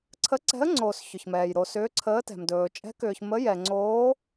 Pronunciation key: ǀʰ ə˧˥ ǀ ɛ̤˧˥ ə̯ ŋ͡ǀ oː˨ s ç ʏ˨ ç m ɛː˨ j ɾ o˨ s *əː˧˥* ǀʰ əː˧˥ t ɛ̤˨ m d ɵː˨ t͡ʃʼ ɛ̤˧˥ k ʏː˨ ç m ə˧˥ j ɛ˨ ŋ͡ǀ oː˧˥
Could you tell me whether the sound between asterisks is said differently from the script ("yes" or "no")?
yes